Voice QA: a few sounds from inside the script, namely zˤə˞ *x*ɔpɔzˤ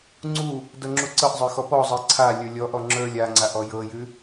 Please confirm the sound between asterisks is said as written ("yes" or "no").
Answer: yes